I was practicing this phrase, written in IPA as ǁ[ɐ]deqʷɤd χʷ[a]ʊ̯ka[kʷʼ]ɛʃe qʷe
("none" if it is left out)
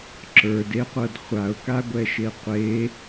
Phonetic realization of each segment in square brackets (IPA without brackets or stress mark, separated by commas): ə˞, a, ɡʷ